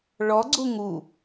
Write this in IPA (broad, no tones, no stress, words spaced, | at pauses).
ɭɔɡ͡ǀu ŋu